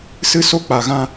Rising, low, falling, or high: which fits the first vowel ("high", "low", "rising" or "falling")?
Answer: high